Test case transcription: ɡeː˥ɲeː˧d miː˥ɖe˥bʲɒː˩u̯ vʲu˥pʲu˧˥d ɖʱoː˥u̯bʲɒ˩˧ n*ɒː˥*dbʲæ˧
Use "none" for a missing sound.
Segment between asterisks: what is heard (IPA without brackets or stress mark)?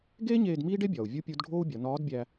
ɒː˧˥